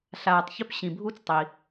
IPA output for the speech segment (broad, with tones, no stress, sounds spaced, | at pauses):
ɬ aː˨ tˤ ç ø˦ p ɕ ĩ˩ bʱ u˦ t͡s tˤ i˩